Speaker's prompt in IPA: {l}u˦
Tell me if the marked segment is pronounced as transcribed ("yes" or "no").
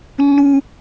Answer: no